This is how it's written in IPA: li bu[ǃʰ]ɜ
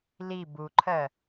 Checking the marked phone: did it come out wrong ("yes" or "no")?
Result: no